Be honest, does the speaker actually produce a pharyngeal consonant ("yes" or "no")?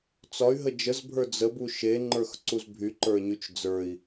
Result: no